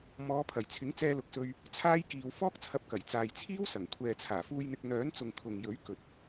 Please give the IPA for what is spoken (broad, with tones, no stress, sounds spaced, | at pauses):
m ɔː˨˧ pʰ ɐ˨˩ j t͡sʰ ɪ˨˥ ŋ t͡s ɛː˧ l ʊ˨ k̚ s ɵ˧ ɥ | t͡sʰ aː˥ j k iː˧ w f ɔː˥ k̚ t͡sʰ ɐ˧ p̚ k ɐ˨˩ j t͡s aː˨ j t͡sʰ iː˥ w s ɐ˨˩ ŋ kʷʰ ɛː˨ t͡sʰ aː˨˩ f uː˧ j n̪ ɪ˧ k̚ n̪ œː˨˥ n t͡s ʊ˨ ŋ kʰ ʊ˨ ŋ j ɵ˨˥ ɥ k ɵ˨ t̚